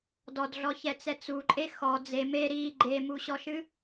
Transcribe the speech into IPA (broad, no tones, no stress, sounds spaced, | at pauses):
d ɔ d ɮ ɔ ç ɛ t͡s ɛ t͡s u ǃʼ e x ɔ d͡z e m e ɾ i ɡ͡ǃ e m u ɕ ɔ ʃ ɨ